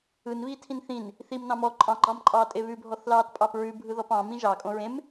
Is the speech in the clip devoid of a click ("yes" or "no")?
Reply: no